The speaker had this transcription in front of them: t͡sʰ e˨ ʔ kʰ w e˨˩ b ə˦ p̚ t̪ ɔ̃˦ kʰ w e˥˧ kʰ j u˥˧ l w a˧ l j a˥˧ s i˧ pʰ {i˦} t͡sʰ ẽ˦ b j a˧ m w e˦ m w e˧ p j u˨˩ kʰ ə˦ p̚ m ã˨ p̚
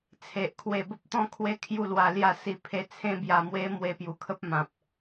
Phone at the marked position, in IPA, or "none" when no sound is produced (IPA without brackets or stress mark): e˦